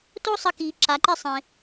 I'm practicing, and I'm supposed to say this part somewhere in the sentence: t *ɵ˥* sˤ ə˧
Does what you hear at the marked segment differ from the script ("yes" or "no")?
yes